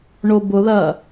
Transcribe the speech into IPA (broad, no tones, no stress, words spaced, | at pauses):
ɳobʊðɐ